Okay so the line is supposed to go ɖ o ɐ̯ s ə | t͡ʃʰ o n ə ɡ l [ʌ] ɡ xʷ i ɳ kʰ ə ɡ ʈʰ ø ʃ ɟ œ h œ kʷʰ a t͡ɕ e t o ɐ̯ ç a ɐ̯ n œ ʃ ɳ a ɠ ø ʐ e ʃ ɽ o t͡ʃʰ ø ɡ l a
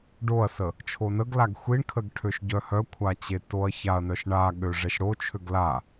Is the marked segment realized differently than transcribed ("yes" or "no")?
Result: yes